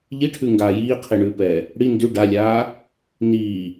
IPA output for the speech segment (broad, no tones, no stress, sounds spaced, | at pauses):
ʎ i ʈʰ ʉ ŋ ɡ aː j iː qʰ i ɳ ʉː p ɛː | ɽ i n d ʉ ɖ a lʲ aː | n iː